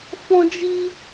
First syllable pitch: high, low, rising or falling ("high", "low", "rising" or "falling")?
high